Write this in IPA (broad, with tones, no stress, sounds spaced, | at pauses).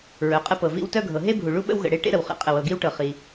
ɹ œ˩ qʼ ə˧ p ɤ˩ v ḭ˧ w t œ˧ ɡʱ ɤ˩ ɦ e˧ bʱ u˩ ɭ u˧ ɓ ə̰˧ w ɣ ə̰˩ ɽ e˧ ʈ ḛ˧ ɾ ə˩ w χ ḛ˩ qʼ ə˩ w ɤ˩ ɡ i˧ w ʈ ɤ˩ χ i˩